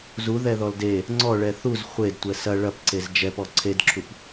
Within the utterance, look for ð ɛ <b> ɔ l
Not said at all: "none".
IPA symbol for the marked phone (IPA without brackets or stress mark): ð